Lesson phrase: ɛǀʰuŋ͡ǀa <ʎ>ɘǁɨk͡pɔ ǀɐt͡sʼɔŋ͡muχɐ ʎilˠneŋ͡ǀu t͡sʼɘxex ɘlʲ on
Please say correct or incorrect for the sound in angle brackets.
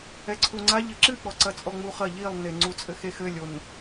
correct